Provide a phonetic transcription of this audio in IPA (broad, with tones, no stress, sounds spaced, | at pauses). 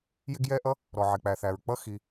j ɪ˥ ɡ j ɛ˥ ʔ ʌ˥ | ɾ ɔ˩ ʕ ɪ˩ k͡p æ˩ θ æ˩ ɹ k͡p ʌ˥ x i˩